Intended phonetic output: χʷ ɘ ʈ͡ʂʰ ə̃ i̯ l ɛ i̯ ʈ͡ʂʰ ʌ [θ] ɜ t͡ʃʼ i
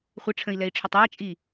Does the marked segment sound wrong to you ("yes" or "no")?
yes